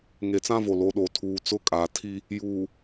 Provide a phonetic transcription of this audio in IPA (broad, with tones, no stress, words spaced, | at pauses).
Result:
ŋe˨t͡sã˦vo˨ lo˨˦ɗo˨ tʰuː˨t͡sʊ˦kʼa˨tʰi˦ | juː˨